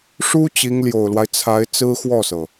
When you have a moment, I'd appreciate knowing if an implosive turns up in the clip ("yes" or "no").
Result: no